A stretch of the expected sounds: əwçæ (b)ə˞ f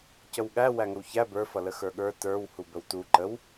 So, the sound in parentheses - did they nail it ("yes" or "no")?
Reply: yes